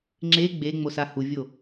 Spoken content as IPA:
ŋ͡ǁ e ɡ͡b e ŋ͡m o s a h u vʲ o

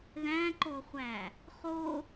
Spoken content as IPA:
ð æ̃ ǃ o χʷ æ | χ o

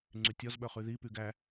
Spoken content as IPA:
ŋ͡ǀ y tʲ ɔ z ɓ œ χ ʉ ð i p y ɡ æ

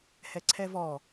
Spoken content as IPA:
h ɛ ǀʰ ɛ v ɔ

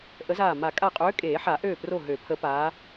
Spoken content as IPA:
ʔ ə˨˦ z aː˧˩ m a˨˩˦ kʼ a˧˩ qʼ øː˨˦ kʼ eː˨˩˦ ħ a˨˩˦ ʔ øː˧˩ p r o˧˩ ɦ ø˨˩˦ pʰ ə˨˦ p aː˨˦

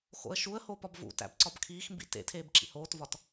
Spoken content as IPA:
x o̰ ə̯ ʃ u ə̯ h o p ɒ b v ṵ t æ̰ b ǀ ɒ b kʰ iː x m b ḭ t ḛ tʰ eː b ǁ ḭ h oː t v ɒ t

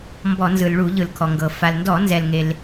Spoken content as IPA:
m b ɔ˧˩˧ n z ɯ˩ l ɭ u˧˩˧ ʎ ɯ˩ l kʰ ɔ˩ ŋ ɡ ɤ˩ f a˩ l n d ɔ˧˩˧ n z ɛ˩ l ŋ e˩ l

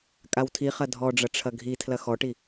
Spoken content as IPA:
kʼ a w tʰ i χ ɐ dʱ ɔ ɖ͡ʐ ɐ ʈ͡ʂʰ ɐ ɡʱ i tʰ l ɐ x ɔ ʈ i

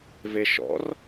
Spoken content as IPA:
v e ʃ ɔ̰ r

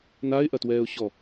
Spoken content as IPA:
n a ɪ̯ ʔ ɐ t w ɛː ʊ̯ ɕ ɔ

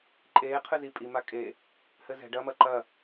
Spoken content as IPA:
ǃʼ eː qʰ ɨ z i pʼ i m a kʼ e | h ɘ z ɛ̤ ɖ ɐ m ɐ ǃ ɐ

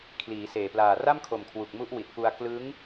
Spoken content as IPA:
kʰ l iː˩˦ s eː˨˩ p l aː˨˩ r a˥˩ m kʰ o˨˩ m kʰ w u˨˩ k̚ m u˦˥ ʔ w i˨˩ t̚ p u˧ a̯ k l ɯ˦˥ ŋ

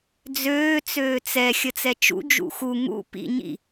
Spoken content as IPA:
d͡z øː t͡s øː t͡s ɛ xʲ ə t͡s ɛ t͡ʃ ṵ d͡ʒ ṵ x u ŋ ṵ p ḭ ɲ ḭ

